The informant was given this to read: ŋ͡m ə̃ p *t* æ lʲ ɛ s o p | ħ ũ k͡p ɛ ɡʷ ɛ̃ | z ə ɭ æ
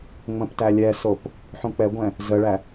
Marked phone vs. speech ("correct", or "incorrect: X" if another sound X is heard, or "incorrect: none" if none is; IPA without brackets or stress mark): correct